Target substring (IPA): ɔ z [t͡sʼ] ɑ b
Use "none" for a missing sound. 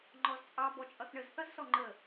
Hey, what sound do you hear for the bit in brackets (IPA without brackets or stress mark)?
t͡sʼ